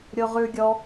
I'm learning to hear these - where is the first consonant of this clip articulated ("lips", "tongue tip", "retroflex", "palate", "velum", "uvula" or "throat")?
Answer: tongue tip